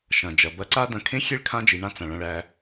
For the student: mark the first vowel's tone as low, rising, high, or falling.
low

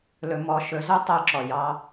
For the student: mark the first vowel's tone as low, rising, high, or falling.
rising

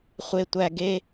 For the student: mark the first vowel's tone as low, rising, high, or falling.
low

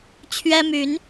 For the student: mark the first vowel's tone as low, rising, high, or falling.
high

